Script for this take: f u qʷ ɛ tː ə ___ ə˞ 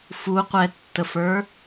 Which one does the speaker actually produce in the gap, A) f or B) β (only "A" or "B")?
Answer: A